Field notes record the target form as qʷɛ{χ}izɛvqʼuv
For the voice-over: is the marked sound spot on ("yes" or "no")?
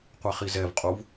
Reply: yes